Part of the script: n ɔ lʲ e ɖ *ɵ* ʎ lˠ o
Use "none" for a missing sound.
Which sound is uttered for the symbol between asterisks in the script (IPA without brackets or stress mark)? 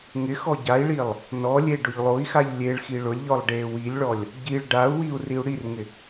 ʊ